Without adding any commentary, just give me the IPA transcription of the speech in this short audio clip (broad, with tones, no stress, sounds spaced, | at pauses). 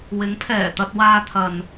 w ɪ˨˥ ŋ pʰ ɛː˨˩ t̪ ɐ˧ t̚ w aː˧ t̪ʰ ɐ˨ n